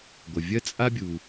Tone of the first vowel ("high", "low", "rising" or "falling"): low